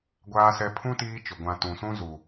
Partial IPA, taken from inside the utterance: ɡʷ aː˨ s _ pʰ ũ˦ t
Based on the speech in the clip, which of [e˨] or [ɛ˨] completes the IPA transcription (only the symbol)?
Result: ɛ˨